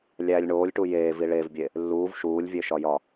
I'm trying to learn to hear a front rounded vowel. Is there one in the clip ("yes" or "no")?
no